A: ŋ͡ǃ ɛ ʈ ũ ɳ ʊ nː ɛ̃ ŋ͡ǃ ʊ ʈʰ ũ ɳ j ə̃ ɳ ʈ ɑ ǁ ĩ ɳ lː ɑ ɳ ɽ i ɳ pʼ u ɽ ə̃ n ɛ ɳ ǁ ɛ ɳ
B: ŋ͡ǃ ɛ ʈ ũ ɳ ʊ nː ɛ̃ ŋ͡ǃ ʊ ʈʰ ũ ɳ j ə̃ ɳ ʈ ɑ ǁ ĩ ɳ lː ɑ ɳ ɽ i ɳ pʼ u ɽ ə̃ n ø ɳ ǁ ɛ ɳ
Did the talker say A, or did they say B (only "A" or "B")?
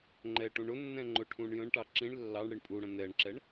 A